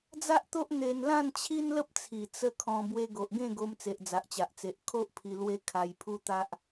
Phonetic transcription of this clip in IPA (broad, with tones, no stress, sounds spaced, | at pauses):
d͡z a˦ ʔ t̪ o˦ ʔ n̪ e˧ n l ã˥˧ n t͡ɕʰ i˦ n l ə˦ p̚ t͡sʰ i˨˩ t͡s ə˦ kʰ ɔ̃˧ b w e˧ ɡ o˨ ʔ ɡ ẽ˥˧ ɡ o˧ m t͡s e˨ ʔ d͡z a˨ ʔ t͡ɕ a˨ ʔ t͡s e˨ ʔ kʰ o˦ ʔ pʰ i˧ l w e˧ kʰ a˧ j pʰ u˦ t̪ a˦ ʔ